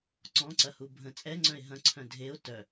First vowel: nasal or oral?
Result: nasal